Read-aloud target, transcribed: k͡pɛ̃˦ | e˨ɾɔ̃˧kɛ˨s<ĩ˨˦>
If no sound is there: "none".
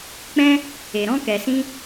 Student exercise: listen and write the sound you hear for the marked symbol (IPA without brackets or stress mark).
ĩ˧